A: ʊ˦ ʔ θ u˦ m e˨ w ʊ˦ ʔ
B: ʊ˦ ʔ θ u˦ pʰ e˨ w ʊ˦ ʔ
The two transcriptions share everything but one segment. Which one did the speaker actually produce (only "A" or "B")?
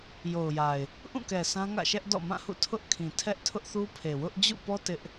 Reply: B